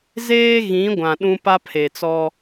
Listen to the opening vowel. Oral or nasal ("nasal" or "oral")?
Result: oral